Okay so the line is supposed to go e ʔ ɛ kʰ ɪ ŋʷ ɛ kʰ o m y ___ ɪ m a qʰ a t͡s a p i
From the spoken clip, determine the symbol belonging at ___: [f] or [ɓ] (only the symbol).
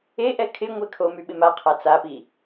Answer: ɓ